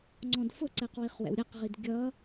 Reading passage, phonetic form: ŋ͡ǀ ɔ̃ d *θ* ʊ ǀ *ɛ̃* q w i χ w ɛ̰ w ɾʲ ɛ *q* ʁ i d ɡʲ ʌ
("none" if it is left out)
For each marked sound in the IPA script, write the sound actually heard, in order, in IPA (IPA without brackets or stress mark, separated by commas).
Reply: f, ɛ, q